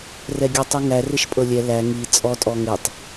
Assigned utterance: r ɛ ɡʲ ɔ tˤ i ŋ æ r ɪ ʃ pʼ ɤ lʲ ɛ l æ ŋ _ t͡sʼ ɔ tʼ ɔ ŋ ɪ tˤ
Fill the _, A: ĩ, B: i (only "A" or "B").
B